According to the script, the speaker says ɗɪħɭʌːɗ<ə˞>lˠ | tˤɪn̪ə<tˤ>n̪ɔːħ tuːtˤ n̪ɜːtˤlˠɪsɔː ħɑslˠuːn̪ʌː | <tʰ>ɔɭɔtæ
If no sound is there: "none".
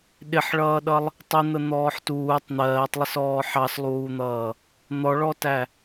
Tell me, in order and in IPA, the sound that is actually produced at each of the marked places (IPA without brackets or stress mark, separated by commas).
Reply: ʌ, none, n̪